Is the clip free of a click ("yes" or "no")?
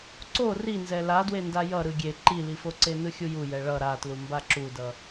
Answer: no